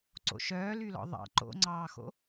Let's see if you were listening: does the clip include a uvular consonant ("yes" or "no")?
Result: no